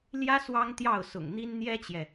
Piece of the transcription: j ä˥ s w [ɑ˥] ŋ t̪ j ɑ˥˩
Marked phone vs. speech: correct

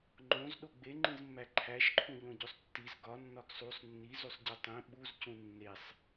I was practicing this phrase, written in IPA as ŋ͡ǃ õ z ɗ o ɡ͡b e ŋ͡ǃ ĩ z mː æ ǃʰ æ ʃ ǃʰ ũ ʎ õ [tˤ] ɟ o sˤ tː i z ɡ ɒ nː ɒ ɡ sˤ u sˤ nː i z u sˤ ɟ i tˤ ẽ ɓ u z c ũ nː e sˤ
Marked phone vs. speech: incorrect: none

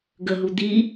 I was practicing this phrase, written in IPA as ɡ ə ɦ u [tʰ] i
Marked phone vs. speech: incorrect: d̪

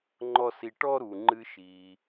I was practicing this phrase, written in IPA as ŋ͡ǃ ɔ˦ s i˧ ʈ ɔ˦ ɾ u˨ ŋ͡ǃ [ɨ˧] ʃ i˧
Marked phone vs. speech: correct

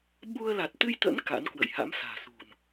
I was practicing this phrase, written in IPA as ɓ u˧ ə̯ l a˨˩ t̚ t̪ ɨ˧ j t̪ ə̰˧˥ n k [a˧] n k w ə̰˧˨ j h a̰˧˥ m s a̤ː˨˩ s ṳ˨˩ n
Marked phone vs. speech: incorrect: a̰˧˥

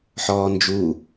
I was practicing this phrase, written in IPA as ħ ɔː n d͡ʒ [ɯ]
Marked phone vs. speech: incorrect: u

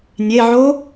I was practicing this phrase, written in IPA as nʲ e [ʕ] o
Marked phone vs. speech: correct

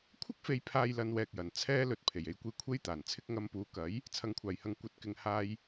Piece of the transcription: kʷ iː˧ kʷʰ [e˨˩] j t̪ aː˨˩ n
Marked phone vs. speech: incorrect: e˥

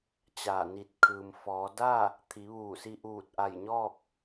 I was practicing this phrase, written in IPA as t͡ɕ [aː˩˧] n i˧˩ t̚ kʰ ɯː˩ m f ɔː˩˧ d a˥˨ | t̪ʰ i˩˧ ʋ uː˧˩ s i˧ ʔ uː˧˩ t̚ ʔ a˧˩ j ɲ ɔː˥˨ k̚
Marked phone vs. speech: incorrect: aː˧˩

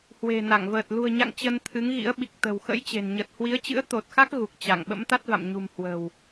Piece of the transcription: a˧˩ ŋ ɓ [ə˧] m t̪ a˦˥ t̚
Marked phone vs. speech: incorrect: ə̰˧˥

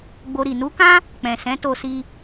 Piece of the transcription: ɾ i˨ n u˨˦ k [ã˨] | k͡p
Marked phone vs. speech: incorrect: ã˦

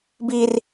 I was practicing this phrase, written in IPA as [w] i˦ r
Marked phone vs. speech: incorrect: b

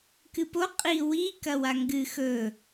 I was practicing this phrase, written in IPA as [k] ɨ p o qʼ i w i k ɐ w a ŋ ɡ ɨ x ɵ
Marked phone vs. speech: correct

